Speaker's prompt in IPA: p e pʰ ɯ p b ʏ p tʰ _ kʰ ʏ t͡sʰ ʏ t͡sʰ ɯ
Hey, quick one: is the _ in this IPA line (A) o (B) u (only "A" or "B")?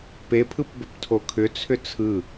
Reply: A